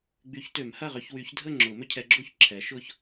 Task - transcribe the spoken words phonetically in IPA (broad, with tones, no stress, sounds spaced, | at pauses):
ɡ͡b y˨˦ ç t ø˨˩˦ m h ɐ˥˨ ʁ ø˦ ç w y˨˦ ç dʱ ə˥˨ ŋ͡ǁ ʊ˨˩˦ m ʏ˦ cʰ ɛ˨˦ ɡ͡ǁ o˥˨ ç ǁʰ ɛ˨˦ ʃ ʊ˥˨ ç